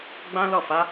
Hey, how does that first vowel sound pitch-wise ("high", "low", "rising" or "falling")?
high